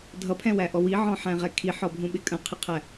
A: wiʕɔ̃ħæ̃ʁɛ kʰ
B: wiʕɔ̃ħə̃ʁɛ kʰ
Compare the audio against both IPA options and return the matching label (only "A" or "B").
A